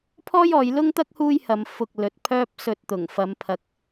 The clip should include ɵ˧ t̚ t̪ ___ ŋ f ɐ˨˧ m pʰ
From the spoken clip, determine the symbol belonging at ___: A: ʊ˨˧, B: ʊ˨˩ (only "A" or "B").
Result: B